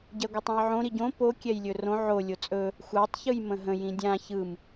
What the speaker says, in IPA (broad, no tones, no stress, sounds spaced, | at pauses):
ɟ ɛ ɡʷ ə tˤ ɛ̃ j ʕ õ ɾ i ɟ õ p o kʲ ɛ j lʲ ɵ r õ ʕ o lʲ o t͡sʼ ɵ | xʷ a tˤ ç ɯ j m ə̃ ɦ ə̃ j ĩ dʲ ã ç ɯ m